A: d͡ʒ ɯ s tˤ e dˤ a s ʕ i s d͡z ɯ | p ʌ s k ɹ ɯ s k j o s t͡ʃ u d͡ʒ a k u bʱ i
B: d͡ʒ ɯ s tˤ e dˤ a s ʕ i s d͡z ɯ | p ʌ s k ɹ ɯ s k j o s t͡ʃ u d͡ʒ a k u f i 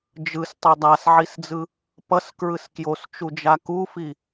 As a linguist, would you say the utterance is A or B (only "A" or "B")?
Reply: B